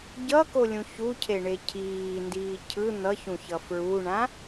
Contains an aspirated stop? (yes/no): yes